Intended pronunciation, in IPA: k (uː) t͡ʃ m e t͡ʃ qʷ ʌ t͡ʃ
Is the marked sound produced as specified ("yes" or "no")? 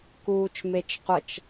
yes